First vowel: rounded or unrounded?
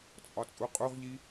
rounded